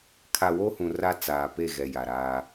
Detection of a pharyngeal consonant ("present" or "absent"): absent